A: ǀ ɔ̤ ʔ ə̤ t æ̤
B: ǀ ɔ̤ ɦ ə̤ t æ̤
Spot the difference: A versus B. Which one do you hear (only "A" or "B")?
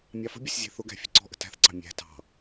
A